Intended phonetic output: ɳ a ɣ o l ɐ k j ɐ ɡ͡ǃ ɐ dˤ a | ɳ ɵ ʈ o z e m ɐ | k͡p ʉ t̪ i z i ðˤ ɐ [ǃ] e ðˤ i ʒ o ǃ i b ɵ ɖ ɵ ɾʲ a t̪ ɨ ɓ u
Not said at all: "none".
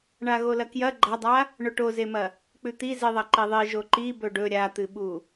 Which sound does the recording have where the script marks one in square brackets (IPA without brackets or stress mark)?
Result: ǃ